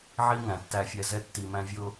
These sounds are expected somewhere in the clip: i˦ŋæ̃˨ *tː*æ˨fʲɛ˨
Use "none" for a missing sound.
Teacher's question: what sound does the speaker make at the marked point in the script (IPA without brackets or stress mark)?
tː